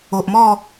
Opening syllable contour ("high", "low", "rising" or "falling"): low